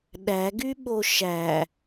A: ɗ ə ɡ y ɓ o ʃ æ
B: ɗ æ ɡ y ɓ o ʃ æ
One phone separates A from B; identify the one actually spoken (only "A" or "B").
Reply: B